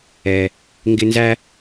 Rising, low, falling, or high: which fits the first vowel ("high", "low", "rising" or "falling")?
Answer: low